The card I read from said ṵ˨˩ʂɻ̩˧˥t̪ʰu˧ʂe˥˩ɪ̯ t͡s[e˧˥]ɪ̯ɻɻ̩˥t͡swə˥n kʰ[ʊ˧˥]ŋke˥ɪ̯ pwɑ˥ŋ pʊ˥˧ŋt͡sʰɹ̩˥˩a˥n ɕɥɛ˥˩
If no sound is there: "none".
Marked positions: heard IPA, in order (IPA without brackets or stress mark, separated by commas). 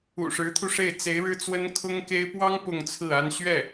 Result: e˧˥, ʊ˥